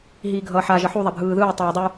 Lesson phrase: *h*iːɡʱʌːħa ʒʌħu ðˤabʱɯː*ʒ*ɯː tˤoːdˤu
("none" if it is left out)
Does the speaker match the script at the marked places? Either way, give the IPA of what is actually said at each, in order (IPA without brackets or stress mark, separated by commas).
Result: ɦ, ð